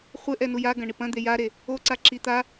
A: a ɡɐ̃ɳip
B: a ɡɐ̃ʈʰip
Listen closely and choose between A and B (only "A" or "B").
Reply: A